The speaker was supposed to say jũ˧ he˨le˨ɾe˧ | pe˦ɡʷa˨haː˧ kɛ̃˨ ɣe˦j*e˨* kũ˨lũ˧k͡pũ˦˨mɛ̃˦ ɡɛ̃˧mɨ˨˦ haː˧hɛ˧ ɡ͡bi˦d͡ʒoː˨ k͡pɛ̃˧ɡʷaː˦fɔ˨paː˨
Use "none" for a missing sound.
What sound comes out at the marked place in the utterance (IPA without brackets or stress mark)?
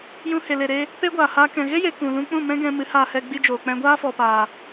e˨